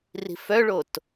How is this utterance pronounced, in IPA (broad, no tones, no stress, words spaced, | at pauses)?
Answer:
ri̤fœɭot